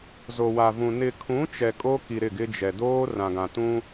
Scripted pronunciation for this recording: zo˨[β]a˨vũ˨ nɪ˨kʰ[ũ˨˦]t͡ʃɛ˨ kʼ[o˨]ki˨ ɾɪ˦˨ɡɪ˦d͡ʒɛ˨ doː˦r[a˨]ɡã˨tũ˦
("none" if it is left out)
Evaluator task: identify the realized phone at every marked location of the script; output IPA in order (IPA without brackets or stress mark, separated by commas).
w, ũ˨˦, o˦, ã˨